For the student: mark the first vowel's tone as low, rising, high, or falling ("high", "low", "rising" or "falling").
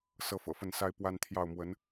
high